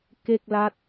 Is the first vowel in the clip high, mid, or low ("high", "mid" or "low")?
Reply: mid